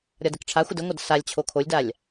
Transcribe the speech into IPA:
ɾʲ ɒ d ɘ k ʈ͡ʂʰ a xʷ ə d ə ŋʷ ʌ d s a lʲ t͡ɕʰ o kʰ o lʲ d a lʲ

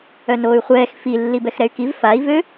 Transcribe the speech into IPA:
œ n oː y̯ χʷ ɛː x f i lː i b ɛ x ɾ ɛ y̯ k i v f a i̯ v ø

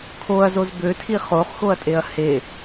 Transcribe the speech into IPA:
kʰ o ɐ̯ z o z b ø tʰ i χ o χ x o ɐ̯ tʼ e ɐ̯ h e

